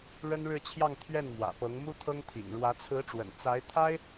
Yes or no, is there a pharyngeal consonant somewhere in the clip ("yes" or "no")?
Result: no